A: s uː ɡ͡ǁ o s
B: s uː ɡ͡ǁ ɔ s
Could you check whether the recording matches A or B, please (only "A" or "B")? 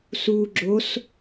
A